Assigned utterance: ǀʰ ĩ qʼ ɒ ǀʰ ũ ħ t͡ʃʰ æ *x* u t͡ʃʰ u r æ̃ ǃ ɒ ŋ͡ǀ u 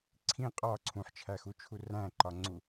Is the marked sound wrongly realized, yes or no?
no